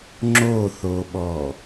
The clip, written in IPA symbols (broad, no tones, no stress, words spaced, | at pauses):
ŋ͡ǁoθoɓɔ